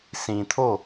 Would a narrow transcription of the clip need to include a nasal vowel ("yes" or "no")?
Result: yes